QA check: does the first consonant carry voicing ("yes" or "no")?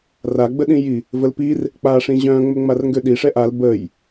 yes